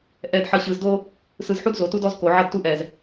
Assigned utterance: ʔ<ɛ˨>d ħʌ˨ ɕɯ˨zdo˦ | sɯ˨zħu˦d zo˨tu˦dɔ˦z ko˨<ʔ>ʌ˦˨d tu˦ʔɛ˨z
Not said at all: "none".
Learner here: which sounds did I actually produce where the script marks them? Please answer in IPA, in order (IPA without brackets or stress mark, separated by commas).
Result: ɛ˨, ʕ